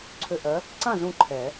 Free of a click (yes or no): no